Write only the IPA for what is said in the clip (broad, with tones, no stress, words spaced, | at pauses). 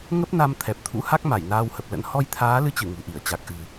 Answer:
ŋə˦˥p̚na˧m t̪ʰɛ˨˩p̚t̪ʰṵ˧˥ ha˦˥k̚ma˧˩j naː˧whə˨˩p̚lə̰˧˥n hɔ˧jt̪ʰaː˨˦ lɨ˧t͡ɕɨ˧˩ ŋṳ˨˩ʔi˧˩ə̯t͡ɕa˨˩k̚ ʔɨ̤˨˩